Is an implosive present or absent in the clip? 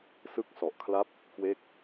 absent